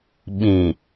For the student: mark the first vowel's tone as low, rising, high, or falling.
low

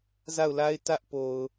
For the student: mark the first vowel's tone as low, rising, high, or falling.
falling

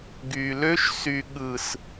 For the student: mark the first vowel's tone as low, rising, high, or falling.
low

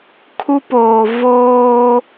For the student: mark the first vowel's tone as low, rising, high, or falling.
high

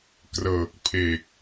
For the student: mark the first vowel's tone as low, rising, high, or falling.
low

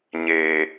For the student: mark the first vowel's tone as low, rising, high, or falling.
low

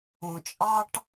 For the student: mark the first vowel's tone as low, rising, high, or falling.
low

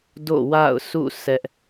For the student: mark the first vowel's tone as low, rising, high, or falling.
falling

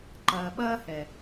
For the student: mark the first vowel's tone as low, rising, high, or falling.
low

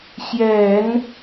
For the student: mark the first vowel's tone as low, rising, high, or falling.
low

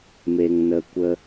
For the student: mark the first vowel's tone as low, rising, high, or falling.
low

